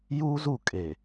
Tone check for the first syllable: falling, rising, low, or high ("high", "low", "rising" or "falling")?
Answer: high